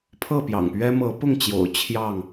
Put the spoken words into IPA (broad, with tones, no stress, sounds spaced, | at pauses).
pʰ ɤ˥˨ p j ɑ̰˨˩ ŋ p ɥ ɛ˦ m ɤ˨˦ p ʊ˥˨ ŋ t͡ɕ j o̰˨˩ ʊ̯ t͡ɕʰ j ɑ˥˨ ŋ